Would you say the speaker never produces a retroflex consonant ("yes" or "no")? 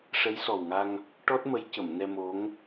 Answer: no